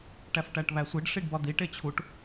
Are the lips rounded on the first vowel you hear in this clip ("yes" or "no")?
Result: no